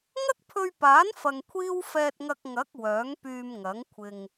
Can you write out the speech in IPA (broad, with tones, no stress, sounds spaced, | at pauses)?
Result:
ŋ ɐ˥ k̚ pʰ ɵ˧ ɥ p aː˨˥ n f ɐ˧ ŋ kʷʰ iː˥ w f ɛː˧ t̚ ŋ ɐ˧ k̚ ŋ ɐ˨˥ k̚ w œː˨˥ ŋ p yː˧ m ŋ ɐ˨˥ ŋ kʷʰ ɪ˧ ŋ